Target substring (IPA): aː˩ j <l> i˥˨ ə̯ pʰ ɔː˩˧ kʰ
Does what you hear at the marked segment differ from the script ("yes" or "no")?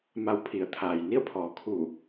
yes